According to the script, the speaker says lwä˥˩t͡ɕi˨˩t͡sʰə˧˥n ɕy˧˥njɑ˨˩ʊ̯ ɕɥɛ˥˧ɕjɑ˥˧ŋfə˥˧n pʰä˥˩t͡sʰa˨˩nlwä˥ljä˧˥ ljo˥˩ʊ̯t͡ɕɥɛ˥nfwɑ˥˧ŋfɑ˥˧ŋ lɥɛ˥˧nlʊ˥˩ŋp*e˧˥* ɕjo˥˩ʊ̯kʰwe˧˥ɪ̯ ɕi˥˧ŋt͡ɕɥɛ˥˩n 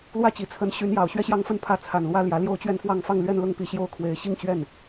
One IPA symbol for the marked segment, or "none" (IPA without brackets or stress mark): i˧˥